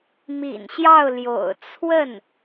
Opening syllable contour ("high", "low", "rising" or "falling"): low